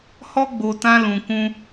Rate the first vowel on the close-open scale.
mid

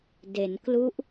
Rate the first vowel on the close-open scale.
mid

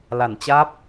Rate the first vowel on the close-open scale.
open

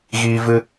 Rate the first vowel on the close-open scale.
close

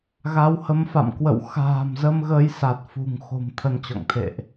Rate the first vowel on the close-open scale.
open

